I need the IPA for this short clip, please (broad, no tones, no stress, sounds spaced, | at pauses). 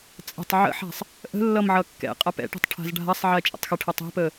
t͡sʼ ə̤ tˤ ʕ ə̰ ħ a̤ sˤ | ʔ ə̤ lː ʌ m ʕ ʌ kː ɛ̰ qʼ a p ɛ̰ ʈ ɛ̤ tˤ ʈʰ a̤ z ɖʱ a sˤ ʕ ɛ t͡ʃʼ ə̰ tˤ x ə ʈʰ ə tˤ ɛ̤ p ə